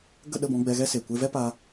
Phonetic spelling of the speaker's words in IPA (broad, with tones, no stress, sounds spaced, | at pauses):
ɡ ə˦˨ ɗ ə˦˨ b ɔ̃˧ ɡ͡b ɛ˧ ɣ ɛ˦ s e˨ kʷ e˧ v ɛ˦ p a˧